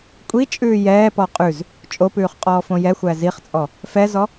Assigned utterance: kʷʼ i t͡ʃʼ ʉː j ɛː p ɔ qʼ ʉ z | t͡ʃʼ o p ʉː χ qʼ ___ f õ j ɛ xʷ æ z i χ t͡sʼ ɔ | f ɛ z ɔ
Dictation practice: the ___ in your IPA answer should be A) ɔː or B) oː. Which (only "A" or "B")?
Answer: A